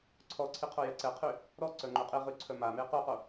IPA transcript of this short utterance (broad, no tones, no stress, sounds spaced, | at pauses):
ǀʰ ɔ ǀʰ i qʰ o j ɛ ǀ ɛ qʰ y | ɾ ɔ ǀ œ ŋ͡ǃ u qʼ i ʁ y ǀʰ œ m a m e q u q o